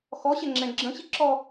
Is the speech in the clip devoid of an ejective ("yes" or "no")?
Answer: yes